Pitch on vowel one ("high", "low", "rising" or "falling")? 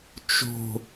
falling